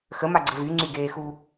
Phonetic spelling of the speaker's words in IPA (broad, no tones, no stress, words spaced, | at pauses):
xəmaɡ͡ǀə vyŋ͡ǀyɡeːxu